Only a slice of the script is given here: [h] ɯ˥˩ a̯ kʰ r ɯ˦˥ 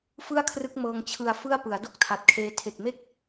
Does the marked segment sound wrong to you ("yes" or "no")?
yes